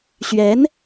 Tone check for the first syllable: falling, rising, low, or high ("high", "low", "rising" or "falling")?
rising